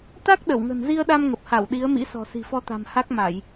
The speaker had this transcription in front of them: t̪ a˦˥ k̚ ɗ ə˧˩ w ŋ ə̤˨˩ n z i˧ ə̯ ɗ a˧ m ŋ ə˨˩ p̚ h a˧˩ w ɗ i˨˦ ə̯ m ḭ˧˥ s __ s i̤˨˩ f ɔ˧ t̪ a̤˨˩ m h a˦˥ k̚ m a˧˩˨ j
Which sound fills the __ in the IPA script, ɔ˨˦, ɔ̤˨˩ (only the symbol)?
ɔ̤˨˩